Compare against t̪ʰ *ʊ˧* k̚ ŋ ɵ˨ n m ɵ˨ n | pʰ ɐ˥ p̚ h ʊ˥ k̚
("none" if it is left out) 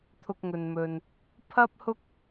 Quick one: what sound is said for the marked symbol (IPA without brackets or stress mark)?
ʊ˧